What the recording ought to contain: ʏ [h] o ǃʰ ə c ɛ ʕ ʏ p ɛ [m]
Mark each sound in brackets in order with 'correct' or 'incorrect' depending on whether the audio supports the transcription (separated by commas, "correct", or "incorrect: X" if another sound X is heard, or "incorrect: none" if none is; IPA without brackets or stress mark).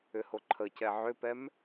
correct, correct